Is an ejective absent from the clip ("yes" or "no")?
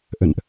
yes